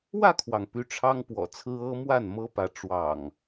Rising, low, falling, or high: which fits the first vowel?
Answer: falling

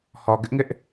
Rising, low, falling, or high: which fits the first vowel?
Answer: low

